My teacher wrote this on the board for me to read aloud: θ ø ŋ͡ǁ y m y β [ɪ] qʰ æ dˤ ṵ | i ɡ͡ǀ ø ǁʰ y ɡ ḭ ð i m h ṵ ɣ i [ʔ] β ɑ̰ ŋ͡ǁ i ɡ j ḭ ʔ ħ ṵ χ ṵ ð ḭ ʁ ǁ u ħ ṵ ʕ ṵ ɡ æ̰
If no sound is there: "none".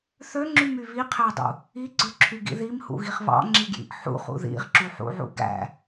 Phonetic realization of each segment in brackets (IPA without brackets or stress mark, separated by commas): i, χ